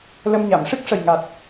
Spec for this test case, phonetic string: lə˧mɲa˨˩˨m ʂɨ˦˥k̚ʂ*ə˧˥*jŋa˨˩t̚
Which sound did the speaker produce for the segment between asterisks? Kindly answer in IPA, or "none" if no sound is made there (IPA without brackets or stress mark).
ə˨˩